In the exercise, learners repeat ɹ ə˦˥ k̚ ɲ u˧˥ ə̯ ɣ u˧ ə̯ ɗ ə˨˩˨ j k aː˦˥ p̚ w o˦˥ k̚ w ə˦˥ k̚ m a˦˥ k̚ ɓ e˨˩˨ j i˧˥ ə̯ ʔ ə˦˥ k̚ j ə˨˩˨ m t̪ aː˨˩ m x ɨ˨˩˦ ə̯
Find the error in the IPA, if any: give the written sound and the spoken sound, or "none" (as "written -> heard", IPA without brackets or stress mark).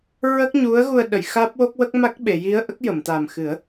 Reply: k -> x